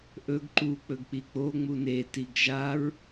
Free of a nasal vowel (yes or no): yes